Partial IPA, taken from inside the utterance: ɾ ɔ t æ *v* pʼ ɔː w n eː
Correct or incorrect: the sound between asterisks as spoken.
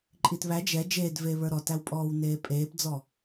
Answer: incorrect: w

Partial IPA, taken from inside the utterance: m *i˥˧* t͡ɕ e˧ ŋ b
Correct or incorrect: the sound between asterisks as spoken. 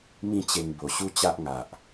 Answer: incorrect: ĩ˥˧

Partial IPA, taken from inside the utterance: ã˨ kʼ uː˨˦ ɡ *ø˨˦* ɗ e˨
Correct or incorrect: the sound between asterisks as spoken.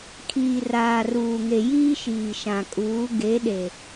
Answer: incorrect: e˨˦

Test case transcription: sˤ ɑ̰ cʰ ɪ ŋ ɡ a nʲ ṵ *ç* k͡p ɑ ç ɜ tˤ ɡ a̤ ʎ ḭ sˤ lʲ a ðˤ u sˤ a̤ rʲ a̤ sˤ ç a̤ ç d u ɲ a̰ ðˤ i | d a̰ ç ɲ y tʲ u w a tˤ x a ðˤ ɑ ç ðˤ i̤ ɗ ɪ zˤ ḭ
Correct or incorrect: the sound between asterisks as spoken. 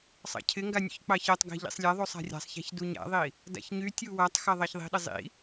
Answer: correct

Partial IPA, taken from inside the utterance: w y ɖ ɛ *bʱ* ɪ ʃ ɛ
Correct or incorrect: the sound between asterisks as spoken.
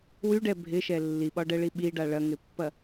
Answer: correct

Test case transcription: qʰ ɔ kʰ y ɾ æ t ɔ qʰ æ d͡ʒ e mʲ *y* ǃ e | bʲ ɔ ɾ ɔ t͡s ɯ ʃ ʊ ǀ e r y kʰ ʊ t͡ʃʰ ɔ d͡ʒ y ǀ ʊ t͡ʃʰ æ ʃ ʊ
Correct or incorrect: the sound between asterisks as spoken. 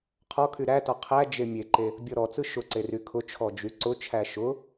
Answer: incorrect: e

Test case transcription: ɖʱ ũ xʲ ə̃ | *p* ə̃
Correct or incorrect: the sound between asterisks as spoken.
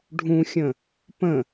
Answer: correct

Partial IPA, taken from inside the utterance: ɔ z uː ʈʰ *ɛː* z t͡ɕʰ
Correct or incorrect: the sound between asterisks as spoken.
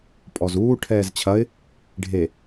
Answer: correct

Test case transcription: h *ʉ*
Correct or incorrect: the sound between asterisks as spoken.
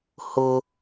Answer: incorrect: ʊ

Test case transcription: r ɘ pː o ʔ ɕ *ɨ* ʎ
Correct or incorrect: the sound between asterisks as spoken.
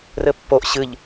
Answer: correct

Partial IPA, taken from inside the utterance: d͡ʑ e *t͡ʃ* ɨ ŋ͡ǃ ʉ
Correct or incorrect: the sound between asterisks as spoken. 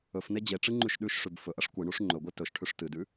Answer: incorrect: ʈ͡ʂ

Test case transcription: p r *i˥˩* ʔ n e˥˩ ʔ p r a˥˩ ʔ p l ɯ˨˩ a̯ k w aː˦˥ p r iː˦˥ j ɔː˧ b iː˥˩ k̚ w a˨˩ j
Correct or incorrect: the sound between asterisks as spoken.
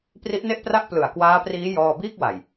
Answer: incorrect: i˦˥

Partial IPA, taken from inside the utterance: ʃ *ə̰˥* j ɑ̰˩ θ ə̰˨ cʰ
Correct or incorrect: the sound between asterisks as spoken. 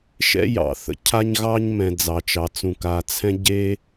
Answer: incorrect: ɛ̰˥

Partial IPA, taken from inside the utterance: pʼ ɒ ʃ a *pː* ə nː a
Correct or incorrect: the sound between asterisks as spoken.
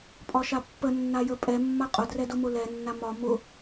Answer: correct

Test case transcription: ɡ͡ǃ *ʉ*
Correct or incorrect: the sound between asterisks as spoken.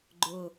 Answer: incorrect: ʊ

